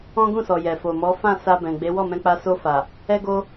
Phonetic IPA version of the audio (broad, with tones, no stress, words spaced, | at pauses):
ɔ̃˦ɡũ˦˨sɔ˨ jɛ˨fo˨mɔ˨˦ fã˦˨sa˧ bɛ̃˨ɡ͡be˨˦ wɔ˦˨mɛ̃˧k͡pa˧ so˧fa˨ | ɛ˦ɡo˦